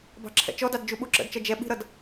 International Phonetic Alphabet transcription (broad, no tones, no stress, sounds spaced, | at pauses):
b ɑ̤ ǁʰ ɛ̰ t͡ʃ ɔ d ɑ d d͡ʒ u ɓ u ǁ ə̰ d t͡ʃ ʌ d͡ʒ ɛ ɓ i̤ ɾ ʌ d